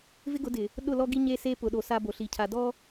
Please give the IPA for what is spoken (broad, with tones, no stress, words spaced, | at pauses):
vɪ˦ɡʊ˨˦dɪ˨ | ɗʊ˦˨lɔ˦ɡi˦ ɲe˦se˦pʊ˨ɗo˨ sa˦bo˨ɬi˨cʰa˨ dɔ˦